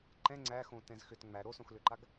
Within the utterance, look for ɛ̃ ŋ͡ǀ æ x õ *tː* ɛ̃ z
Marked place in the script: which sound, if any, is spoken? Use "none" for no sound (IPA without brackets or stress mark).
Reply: t